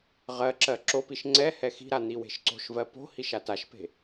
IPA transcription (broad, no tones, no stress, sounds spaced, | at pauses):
ʁ ɜ ǁ ɜ ǁ o p i ʃ ŋ͡ǀ ɛ h ɛ x i̤ ɾ a n̪ i w e̤ ʃ ǀ o̤ ʃ v ɜ p o̤ h i ʃ a t a ʃ p e̤